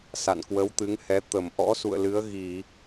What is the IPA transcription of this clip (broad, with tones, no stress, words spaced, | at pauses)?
sa̰˧˨n kwə˨˦wt̪ɨ˨˦ŋhɛ˨˦ t̪ə˧˩m ʔɔ̰˧˥sṵ˧˨ə̯lɨ˨˦ə̯ ɣi˧˩˨